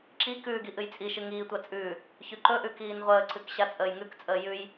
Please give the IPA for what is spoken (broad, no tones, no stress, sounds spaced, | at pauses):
ǁ i k ʉː ɡ i ʔ ɨ j t͡sʼ i ʃ ɨ ŋ iː tʷ a t͡sʼ ʉː | ç ʉ ǃ ɵ ʔ ʉ k iː n ʁʷ əː ǀ ɨ k ɕ a t͡sʼ əː j ŋ ʉ k t͡sʼ əː j ʉ j